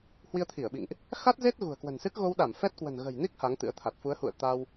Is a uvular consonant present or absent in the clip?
absent